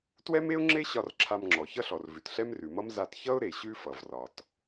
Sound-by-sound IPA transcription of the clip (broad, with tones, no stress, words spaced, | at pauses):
twɛ˥me˥ʊ̯ŋ͡ǁe˥ɕɒ˧r ǁʰa˧mŋ͡ǁɔ˩çʌ˥ɬɔ˩r vʉ˩tɬɛ˥mrʉ˩mʌ˥m za˧t çʌ˥ʊ̯ɾe˩ ɕʉ˥fʌ˩vrɒ˩t